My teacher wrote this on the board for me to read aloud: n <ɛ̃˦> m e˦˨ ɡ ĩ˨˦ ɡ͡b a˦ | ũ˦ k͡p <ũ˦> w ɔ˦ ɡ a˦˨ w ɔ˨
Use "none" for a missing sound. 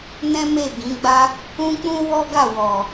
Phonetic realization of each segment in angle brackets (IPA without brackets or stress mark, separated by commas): ɛ̃˦, ũ˦